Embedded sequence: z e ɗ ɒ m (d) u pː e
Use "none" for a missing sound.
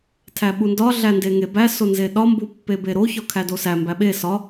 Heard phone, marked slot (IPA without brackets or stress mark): b